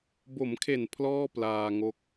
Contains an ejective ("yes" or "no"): no